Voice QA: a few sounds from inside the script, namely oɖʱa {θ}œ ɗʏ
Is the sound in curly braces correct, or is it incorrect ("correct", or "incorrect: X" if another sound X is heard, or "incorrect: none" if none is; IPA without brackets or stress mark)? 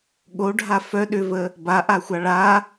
incorrect: f